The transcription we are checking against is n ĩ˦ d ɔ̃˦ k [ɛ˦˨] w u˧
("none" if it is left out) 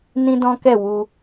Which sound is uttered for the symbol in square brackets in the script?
ɛ˦˨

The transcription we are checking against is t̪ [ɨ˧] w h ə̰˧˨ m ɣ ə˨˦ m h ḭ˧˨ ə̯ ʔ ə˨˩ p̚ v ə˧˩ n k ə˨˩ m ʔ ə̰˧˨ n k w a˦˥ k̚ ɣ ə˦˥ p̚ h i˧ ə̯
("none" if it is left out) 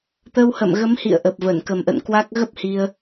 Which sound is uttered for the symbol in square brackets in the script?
ə˧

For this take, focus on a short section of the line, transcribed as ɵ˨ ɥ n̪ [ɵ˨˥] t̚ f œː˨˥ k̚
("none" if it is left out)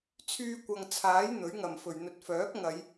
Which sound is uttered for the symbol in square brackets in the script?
ɵ˨˥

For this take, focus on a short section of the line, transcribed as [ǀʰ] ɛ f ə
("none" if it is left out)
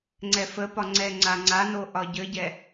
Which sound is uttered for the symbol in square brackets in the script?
ŋ͡ǀ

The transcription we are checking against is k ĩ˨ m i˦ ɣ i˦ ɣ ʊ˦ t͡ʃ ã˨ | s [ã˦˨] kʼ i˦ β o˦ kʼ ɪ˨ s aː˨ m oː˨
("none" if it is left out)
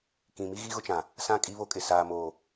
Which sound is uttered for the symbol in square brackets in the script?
ã˦˨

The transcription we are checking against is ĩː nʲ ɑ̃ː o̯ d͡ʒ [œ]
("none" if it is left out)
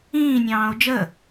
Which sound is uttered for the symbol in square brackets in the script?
ə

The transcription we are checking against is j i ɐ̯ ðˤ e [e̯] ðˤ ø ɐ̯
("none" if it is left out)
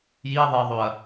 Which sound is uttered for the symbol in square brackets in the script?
ɐ̯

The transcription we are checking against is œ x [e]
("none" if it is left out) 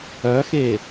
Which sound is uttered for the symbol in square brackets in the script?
e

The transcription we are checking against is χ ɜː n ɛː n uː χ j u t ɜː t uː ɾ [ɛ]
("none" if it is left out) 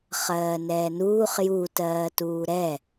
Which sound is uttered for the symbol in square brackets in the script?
ɛ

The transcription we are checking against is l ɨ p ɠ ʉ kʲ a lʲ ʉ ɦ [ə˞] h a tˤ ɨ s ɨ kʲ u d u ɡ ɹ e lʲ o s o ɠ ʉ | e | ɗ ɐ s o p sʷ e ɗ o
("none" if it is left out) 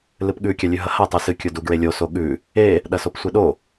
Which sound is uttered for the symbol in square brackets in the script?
ɐ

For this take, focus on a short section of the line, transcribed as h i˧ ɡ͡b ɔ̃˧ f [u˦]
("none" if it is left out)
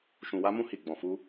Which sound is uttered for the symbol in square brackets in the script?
u˦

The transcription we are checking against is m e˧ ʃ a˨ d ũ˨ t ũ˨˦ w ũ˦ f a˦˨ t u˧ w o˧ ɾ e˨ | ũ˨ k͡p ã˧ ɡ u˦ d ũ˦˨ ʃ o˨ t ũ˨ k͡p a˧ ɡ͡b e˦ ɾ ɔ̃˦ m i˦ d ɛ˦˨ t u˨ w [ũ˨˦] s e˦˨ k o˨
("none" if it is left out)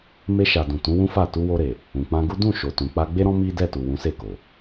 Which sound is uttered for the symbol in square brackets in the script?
ũ˨˦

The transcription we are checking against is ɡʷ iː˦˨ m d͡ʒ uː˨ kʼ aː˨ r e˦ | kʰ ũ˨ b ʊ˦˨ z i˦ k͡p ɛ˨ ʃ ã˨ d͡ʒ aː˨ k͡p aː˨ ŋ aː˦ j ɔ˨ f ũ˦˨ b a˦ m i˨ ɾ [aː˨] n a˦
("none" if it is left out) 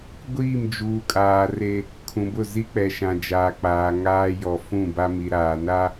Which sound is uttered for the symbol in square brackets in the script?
aː˨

